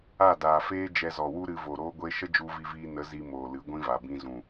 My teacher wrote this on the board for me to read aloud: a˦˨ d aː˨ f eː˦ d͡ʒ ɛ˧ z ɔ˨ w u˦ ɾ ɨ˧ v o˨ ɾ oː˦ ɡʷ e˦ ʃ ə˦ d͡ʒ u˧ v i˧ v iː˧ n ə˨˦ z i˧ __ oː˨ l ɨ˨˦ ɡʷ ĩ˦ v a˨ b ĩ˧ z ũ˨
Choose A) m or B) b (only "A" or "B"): A